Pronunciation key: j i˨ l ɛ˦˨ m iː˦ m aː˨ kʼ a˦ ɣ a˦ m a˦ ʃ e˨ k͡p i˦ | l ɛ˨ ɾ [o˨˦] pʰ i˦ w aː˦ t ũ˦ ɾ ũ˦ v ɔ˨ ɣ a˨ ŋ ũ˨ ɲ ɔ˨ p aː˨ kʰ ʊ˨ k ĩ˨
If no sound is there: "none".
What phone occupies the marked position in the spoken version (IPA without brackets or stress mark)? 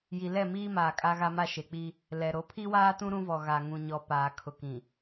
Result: o˨˦